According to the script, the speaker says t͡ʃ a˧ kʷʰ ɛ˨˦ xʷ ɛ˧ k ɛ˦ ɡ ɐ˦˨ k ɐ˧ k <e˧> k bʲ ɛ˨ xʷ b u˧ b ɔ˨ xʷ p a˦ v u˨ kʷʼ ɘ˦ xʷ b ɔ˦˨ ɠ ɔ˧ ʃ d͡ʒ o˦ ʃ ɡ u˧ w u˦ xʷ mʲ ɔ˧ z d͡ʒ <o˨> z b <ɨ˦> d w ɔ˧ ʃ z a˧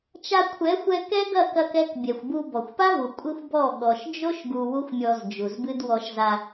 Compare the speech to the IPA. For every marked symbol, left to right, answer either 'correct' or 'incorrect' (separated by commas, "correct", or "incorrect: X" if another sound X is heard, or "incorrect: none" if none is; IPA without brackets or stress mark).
incorrect: ɛ˧, incorrect: u˨, correct